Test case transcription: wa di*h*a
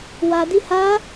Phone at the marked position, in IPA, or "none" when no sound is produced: h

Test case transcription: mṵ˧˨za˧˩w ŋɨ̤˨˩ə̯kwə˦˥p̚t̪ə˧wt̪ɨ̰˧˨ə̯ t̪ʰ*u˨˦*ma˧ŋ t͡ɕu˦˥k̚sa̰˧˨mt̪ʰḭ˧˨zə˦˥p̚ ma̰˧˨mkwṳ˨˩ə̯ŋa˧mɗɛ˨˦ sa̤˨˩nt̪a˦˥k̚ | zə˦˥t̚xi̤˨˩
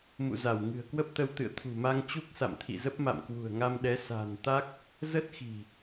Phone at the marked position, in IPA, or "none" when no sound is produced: ṳ˨˩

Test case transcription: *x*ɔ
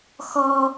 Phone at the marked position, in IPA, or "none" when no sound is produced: x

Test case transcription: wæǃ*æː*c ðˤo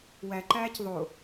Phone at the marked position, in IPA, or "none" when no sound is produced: æː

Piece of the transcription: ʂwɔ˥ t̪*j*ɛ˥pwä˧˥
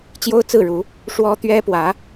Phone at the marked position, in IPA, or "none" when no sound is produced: ɥ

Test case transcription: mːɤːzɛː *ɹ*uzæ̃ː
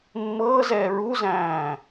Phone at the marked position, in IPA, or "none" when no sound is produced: ɹ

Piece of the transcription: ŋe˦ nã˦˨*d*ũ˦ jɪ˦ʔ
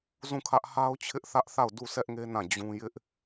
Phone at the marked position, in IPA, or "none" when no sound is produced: d͡ʑ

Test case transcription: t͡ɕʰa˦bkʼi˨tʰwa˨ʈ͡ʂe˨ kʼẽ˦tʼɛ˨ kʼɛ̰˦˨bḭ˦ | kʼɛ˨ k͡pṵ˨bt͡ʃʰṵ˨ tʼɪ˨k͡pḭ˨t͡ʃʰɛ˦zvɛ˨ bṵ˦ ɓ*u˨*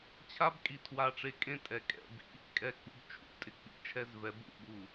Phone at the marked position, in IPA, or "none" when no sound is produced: u˨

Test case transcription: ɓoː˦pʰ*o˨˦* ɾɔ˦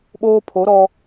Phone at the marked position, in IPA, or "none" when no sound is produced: o˨˦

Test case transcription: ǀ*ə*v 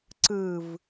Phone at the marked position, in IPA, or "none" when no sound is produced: ɯ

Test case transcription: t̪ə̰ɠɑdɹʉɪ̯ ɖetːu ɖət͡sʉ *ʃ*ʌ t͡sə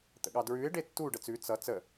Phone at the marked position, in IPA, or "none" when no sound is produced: t͡s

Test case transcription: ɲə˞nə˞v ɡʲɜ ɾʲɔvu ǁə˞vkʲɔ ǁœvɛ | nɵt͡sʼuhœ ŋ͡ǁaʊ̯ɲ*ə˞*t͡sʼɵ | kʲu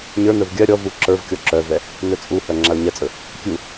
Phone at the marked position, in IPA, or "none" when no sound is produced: ɜ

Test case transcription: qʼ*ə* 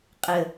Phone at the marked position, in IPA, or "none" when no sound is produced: ə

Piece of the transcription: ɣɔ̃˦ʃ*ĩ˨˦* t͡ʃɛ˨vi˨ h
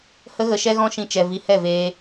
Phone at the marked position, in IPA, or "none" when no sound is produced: ĩ˧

